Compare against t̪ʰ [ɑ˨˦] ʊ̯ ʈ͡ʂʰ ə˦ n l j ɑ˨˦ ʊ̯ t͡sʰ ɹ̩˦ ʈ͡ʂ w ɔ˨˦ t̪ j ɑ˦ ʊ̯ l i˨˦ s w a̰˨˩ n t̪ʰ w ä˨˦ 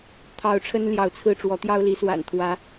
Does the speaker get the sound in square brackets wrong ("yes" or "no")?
no